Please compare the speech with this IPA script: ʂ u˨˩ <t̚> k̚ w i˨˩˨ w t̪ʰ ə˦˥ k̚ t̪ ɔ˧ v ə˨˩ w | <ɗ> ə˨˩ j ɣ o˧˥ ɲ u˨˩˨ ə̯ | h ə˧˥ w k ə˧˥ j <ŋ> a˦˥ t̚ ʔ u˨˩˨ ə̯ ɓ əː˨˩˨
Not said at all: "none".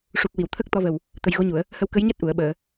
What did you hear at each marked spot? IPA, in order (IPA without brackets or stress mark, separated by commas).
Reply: none, t̪, ɲ